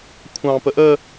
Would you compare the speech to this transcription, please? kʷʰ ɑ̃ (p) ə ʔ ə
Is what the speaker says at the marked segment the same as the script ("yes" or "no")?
yes